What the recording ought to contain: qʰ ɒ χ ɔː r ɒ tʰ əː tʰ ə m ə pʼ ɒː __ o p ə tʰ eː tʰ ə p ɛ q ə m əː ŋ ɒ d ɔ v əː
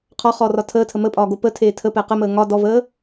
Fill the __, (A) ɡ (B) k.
A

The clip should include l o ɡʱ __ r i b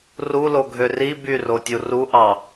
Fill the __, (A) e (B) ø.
B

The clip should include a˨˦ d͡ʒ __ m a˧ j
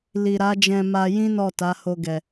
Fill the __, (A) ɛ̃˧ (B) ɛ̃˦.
A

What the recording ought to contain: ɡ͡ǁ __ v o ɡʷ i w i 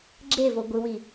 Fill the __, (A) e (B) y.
A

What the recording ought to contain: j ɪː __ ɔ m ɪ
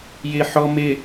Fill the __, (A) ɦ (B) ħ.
B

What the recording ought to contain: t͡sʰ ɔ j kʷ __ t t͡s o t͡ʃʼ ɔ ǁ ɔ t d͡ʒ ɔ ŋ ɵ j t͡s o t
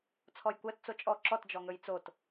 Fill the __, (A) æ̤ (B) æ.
B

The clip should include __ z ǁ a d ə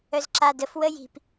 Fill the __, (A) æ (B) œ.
B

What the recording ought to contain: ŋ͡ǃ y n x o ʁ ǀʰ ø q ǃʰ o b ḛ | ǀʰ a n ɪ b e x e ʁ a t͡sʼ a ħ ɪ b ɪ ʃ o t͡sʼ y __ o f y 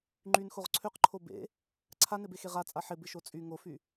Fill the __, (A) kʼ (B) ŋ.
B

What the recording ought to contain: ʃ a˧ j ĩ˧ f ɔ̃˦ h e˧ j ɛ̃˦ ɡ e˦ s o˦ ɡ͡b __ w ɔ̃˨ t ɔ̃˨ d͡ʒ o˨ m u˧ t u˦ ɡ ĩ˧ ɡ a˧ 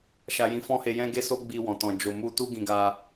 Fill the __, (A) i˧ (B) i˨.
A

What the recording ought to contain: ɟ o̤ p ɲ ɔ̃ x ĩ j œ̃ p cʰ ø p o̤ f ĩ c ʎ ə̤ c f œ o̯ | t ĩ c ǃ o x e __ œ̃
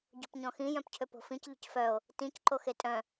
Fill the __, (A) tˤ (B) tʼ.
B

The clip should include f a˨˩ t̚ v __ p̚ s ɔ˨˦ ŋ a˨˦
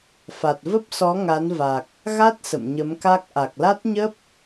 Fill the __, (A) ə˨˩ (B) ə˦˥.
B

